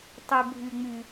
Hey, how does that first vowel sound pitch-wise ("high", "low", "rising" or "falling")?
low